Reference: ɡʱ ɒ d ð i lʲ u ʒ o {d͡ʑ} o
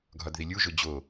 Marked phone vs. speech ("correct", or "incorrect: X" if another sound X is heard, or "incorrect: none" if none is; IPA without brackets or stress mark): correct